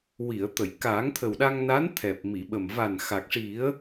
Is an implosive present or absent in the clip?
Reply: present